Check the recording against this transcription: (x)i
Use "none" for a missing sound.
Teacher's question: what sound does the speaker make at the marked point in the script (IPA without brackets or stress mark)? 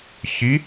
ç